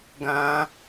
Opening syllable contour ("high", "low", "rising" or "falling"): high